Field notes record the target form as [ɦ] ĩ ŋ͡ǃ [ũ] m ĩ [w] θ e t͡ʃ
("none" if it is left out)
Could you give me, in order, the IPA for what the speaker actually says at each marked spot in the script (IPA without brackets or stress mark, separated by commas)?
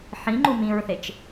ħ, u, ɹ